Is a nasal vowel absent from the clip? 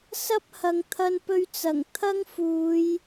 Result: yes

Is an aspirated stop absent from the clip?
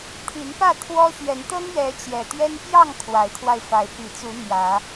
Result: no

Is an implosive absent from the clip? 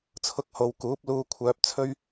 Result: yes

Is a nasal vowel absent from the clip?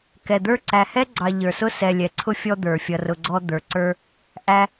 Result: yes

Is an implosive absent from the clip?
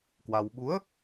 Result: no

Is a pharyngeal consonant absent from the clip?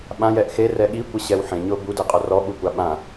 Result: no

